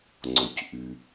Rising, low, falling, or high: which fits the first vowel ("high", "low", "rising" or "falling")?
low